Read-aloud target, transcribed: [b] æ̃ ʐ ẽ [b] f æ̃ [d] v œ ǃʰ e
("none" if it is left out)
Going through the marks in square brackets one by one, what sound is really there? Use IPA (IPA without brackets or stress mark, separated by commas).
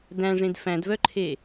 d, d, d